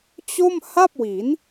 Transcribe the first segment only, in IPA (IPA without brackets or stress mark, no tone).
t͡ɕ